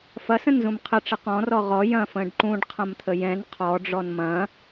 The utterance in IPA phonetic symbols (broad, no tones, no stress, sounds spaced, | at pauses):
f ɐ s ə̃ n z ũ m qʰ ə ʈ͡ʂ ə q ɔ̃ r ɔ ʁ ɔ j ɐ̃ f ə̃ː ɖ ǃ ũ ɖ qʰ ɐ̃ m t̪ʰ ə j ɛ̃ n qʰ ɔ ɖ͡ʐ ɔ n m ɐ̃